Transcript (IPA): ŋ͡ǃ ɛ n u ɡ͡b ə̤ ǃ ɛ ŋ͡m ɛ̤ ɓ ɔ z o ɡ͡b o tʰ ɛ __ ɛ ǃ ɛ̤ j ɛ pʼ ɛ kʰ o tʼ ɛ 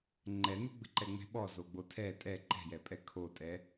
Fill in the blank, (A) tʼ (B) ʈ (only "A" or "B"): A